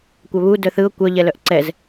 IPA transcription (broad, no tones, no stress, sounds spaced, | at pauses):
kʷ œ β u d œ θ ɯ ʊ̯ kʷ œ ʎ ɛ l œ ʔ ǀ ɛ z